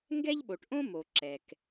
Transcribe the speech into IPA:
ŋ ɡ ɛ˥ ʎ ɓ o˩ ʈ ʔ õ˥ m o˩ ǁ ɛ˩ k

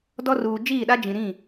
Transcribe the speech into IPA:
d ɔ˦ r uː˨ d͡ʒ iː˦˨ ɗ a˦ d͡ʒ ĩ˨ ɾ ĩ˦˨

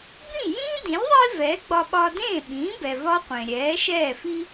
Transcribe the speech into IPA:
b ĩ˥˩ j ĩː˥ d ĩ˩˥ lʲ ðˤ i˥ v ɛː˩˥ ɡ͡b ɒ˧ ɓ ɒː˧ d ẽː˥˩ ɓ ĩː˩˥ b ɛ˩ v ɒ˥ qʷ ẽ˩ ɾʲ ɛː˩˥ ʃ ɛː˥˩ f i˥

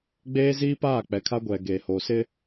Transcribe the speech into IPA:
ɡ͡b eː˦ z iː˦ p aː˦˨ k͡p ɛ˨ kʰ a˦ ɡʷ ɛ˨ ɡ eː˨ h oː˨ s ɪ˦

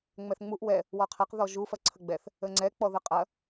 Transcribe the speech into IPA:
ŋ͡m ɛ θ ŋ͡m u ʔ w ɛ | w ɔ qʰ ɐ q ð ɔ ʒ u f ɐ ǀʰ ə ɡ͡b ɛ θ | ə ŋ͡ǀ ɛ k͡p ɔ ð ə qʼ ɐ

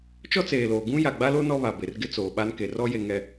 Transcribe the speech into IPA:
t͡ʃ ɔ˦ t͡s eː˨ l oː˨ ɡ ũ˦ j a˨ ɡ͡b a˦ l o˦ n ɔ˦ β a˨ b e˨ r ɡ ɪ˦ t͡s oː˨ ɓ a˦ n k e˨ r ɔ˦ j e˨ ŋ ɛ˨

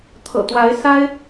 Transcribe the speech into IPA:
t̪ʰ ɤ̰˨˩ t̪ w a˧˥ ɪ̯ s a˥ ɪ̯

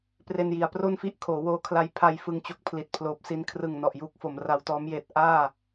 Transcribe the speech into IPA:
p r e˧ n j i˩˦ a̯ p r o˥˩ n f i˥˩ ʔ kʰ oː˩˦ w oː˧ kʰ l a˧ j pʰ a˧ j f ɯ˧ ŋ t͡ɕ o˦˥ k̚ pʰ l i˨˩ t̚ pʰ l oː˨˩ p̚ s i˧ n kʰ r ɯ˨˩ ŋ n ɔ˨˩ ʔ j uː˥˩ k̚ f o˩˦ m r a˧ w t ɔː˦˥ m j eː˦˥ t̚ ʔ aː˥˩

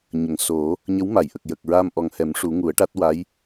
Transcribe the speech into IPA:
ɲ ə˨˩˨ ŋ s o˨˩˦ | ɲ ə˧˥ w m a˨˩˨ j ʔ ə˨˩ k̚ j ə˨˩ k̚ ɹ aː˧ m ʔ ɔ˨˩ ŋ h ɛ˨˩˦ m ʂ u˨˩˦ ŋ u˨˩˦ ə̯ ʈ a˦˥ t̚ w a˧˥ j

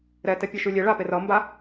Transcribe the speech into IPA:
ɾ ɛ t ɛ pʲ ɘ ʃ ʉ lʲ e ɭ a p e r ʌ m b a

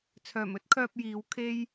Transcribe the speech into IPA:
t͡sʰ œː˨˩ m ɵ˥ t̚ kʰ œː˧ p̚ j iː˨˥ w kʰ e˥ j

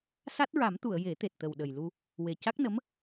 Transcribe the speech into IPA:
s a˦˥ t̚ ɹ a˨˩˦ m t̪ u˨˩˨ ə̯ j e˨˩˦ t̪ e˨˩ t̚ t̪ ə˨˩ w ɗ ə˨˩ j l u˧ | w e˨˩ c a˦˥ k̚ n ə˧˥ m

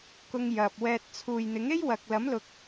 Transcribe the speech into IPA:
k ʊ˧ ŋ j ɐ˨ p̚ w ɛː˧ t̚ t͡sʰ uː˨ j n̪ ɪ˨˥ ŋ e˥ j w ɐ˨ k̚ l ɐ˨˥ m l ʊ˨ k̚

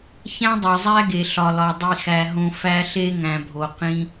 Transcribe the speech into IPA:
ç æ̃˦ dˤ e˨ zˤ æ˦ ɡ e˨ ɬ ɒ˨ l ɒ˨ dˤ i˨ x æ˨ ɦ õ˨ f æ˦ ɬ e˦ ŋ æ̃˨ bʱ o˨ q ĩ˦

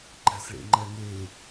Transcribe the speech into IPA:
ǃ æ̤ s ɭ ḛ ŋ͡ǃ æ ŋ e

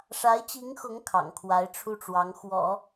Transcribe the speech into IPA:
ʂ a˧˥ ɪ̯ t͡ɕ i˧˥ ŋ x ʊ˧˥ ŋ kʰ ɑ̰˨˩ ŋ kʰ w a˧˥ ɪ̯ ʈ͡ʂʰ u˥˩ ʈ͡ʂ w ɑ˧˥ ŋ x w ɔ̰˨˩˦

